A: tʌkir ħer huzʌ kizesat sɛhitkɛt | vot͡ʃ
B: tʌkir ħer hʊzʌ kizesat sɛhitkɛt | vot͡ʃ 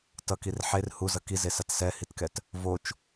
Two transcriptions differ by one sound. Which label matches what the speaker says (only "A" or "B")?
A